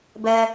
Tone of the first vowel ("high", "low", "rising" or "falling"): low